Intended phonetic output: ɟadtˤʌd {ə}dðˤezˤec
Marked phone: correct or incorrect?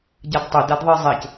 incorrect: a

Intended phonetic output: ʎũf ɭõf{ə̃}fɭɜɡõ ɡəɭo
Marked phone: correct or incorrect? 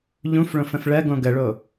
correct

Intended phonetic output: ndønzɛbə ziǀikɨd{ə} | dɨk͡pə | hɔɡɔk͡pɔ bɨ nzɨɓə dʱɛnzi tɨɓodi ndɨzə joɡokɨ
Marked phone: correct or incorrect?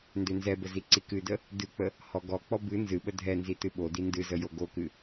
correct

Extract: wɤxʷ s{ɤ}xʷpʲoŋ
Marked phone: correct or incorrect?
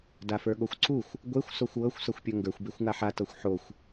correct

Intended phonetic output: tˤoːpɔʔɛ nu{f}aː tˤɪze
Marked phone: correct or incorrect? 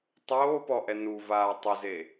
incorrect: v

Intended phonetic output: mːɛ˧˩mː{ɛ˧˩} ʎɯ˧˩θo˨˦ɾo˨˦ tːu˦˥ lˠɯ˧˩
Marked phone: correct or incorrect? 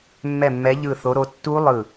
incorrect: ɛ˨˦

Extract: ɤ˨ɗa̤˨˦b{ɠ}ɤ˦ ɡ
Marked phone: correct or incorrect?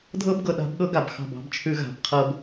correct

